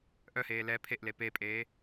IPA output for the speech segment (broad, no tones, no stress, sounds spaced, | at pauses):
ʔ œ h eː l ɛ pʰ e ʔ l e p e pʼ eː